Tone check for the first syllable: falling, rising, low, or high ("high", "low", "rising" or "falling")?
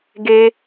high